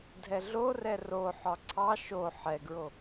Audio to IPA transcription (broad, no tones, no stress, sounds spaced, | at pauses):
dʱ ɛ ɮ o r ɛ r o ħ ɒ ǀʰ ɑ ʃ o ħ ɛ ɡ ɹ o